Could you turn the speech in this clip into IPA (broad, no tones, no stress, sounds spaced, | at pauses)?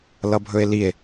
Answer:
l ʌ bʱ ɵ e̯ l i e̯